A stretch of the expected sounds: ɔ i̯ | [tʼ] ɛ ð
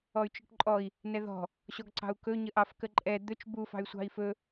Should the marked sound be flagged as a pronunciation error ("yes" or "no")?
yes